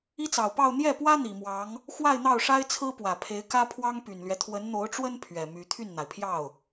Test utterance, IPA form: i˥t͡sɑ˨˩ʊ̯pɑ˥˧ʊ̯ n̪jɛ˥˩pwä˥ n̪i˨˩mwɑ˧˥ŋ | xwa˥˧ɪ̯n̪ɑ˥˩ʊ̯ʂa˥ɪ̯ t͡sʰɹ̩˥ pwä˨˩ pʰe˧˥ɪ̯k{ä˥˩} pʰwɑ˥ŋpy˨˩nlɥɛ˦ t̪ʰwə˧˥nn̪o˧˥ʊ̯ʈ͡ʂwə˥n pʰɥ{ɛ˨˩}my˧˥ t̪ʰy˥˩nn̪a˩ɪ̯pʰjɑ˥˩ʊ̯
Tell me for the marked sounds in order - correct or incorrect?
incorrect: ä˥, correct

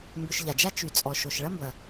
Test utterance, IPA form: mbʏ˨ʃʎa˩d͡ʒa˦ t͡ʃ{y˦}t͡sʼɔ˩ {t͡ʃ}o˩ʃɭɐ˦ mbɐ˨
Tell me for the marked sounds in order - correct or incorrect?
incorrect: y˩, incorrect: ʃ

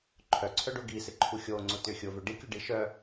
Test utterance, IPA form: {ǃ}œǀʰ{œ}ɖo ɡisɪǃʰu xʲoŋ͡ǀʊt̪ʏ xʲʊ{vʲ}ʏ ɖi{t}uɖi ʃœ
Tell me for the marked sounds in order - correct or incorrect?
incorrect: ǃʰ, correct, incorrect: v, incorrect: kʲ

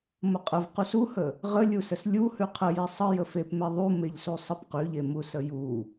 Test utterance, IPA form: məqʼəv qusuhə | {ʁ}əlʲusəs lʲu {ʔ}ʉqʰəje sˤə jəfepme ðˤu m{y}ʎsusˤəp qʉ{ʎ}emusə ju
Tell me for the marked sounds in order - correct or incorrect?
correct, incorrect: h, incorrect: e, correct

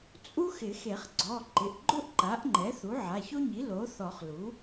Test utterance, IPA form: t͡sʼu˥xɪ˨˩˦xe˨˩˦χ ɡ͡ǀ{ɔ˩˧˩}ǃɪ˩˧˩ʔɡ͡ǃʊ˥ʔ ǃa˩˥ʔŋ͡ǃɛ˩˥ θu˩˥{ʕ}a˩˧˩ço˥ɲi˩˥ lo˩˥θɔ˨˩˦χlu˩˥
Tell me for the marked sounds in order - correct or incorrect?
correct, correct

